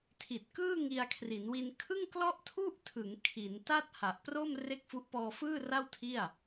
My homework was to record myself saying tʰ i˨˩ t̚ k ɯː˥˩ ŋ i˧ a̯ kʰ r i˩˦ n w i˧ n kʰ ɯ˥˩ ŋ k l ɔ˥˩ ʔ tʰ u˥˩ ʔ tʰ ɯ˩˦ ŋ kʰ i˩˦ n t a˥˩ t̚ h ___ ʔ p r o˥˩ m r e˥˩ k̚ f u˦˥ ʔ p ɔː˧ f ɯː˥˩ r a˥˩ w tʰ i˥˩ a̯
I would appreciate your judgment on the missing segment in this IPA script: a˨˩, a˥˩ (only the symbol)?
a˨˩